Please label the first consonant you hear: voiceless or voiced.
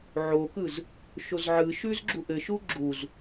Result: voiced